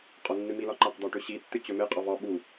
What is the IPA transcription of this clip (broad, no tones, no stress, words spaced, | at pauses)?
qʼɒnːɨmilɒ ǃaqd̪ɒ ʈɵɕitːɨ t͡ɕɵmeqʼɒv ɒ ɓu